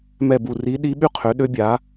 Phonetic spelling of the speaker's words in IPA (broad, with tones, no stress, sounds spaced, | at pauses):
m ɛ˧˩ b u˧˩ r i˧˥ ɗ i˧˥ ɓ y˥ qʰ ø˩˥ ɗ ø˧˥ bʲ a˩˥